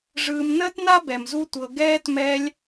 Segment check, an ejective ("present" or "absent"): absent